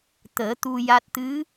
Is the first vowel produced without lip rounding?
yes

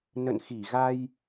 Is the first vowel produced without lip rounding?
yes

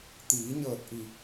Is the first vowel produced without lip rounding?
yes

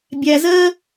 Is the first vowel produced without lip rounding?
yes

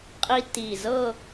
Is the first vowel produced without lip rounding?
yes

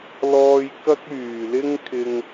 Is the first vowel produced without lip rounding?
no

